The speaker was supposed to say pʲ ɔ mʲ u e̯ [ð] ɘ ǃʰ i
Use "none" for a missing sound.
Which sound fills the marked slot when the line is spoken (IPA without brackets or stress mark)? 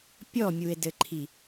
d